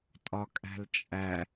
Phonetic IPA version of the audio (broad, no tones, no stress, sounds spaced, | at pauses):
tʼ ɒ kʼ æ̤ l t͡ʃʼ æ